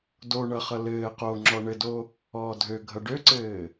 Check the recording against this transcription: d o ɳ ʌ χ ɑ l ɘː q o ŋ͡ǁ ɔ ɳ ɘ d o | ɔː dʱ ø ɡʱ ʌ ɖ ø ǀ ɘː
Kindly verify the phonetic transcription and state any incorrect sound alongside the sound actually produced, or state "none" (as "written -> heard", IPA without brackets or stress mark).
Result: ɑ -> ʌ